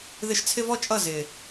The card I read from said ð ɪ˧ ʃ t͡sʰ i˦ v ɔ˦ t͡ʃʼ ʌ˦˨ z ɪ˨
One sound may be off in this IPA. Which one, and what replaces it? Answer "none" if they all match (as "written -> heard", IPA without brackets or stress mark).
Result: i˦ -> ɪ˦